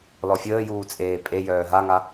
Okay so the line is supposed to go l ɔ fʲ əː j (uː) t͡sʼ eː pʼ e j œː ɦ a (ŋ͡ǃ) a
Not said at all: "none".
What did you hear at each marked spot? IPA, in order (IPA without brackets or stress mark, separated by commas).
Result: uː, ŋ